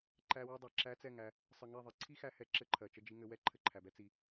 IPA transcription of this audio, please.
ǃ æ˧ w ɘ˧ dˤ ɜ˨ ǁ æ˧ t͡s ɛ˦˨ ŋ æ˧ | sˤ ə˨ ŋ ɛ˦˨ ðˤ ɘ˨ ǀʰ i˦ x æ˧ h ɛ˨˦ ǁ ɘ˧ ǃʰ ɜ˨ t͡ʃ ə˧ d͡ʒ i˧ ŋ ɘ˧ w ɛ˦ ǃʰ ɘ˧ ǃʰ æ˨ b ɛ˦ t͡s i˧

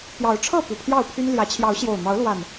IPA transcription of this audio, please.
p j ɑ˨˦ ʊ̯ ʈ͡ʂʰ ɤ˥˨ p u˨˩ pʰ j ɑ˥˨ ʊ̯ pʰ y˦ n l j ä˨˦ t͡ɕʰ j ɑ˨˦ ʊ̯ ɕ j o˨˩ ʊ̯ n̪ ɑ˨˦ ʊ̯ l w a˨˩ n

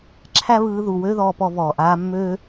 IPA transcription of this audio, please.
ǁʰ æ˦ β ɯː˧ ð u˨ w ø˦ ð ɔː˧ p ɔ˧ v ɔː˨ ʔ aː˧ mː ø˦

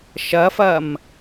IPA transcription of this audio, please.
ʃ ɐ f ɐː m

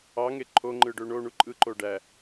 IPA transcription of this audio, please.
ɑ ŋ e ǃʰ o ŋ͡ǃ ɯ ɖ ø ɳ o ɳ u ǃʼ ɯ ǃ o ɖ æ

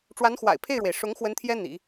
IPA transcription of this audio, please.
ʈ͡ʂ w a˧˥ n x w a̰˨˩ ɪ̯ pʰ e˥˩ ɪ̯ ɻ w e˩ ɪ̯ ʂ ʊ˧˥ ŋ x w ə˧˥ n t̪ʰ j ɛ˥ n̪ ḭ˨˩˦

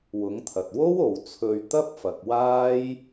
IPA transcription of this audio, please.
w ʊ˨˥ ŋ t̪ʰ ɐ˨ t̚ w o˥ w o˨ w t͡sʰ ɵ˧ ɥ t̪ ɐ˥ p̚ f ɐ˨ k̚ w aː˥ j

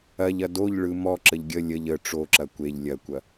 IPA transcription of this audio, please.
ɐ ʎ ɐ d o ʎ ɭ ɯ m ɔ ǁ ə ʎ ɡʲ ə lʲ ə ʎ ə ʈ͡ʂ o ǁ ɐ kʷ e ʎ lʲ ɐ kʷ ɐ

